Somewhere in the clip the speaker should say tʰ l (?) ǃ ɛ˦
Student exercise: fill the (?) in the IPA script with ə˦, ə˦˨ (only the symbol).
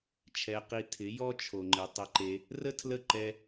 ə˦˨